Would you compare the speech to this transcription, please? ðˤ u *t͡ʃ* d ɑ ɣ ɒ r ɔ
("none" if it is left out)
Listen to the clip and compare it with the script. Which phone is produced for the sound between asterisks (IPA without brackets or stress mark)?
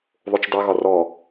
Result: t͡ʃ